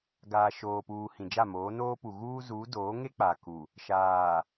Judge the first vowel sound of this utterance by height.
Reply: low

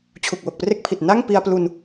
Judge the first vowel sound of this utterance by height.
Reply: high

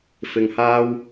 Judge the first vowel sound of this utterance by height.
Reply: high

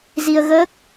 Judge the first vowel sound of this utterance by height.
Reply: high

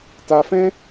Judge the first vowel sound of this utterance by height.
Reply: low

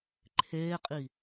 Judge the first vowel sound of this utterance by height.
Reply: mid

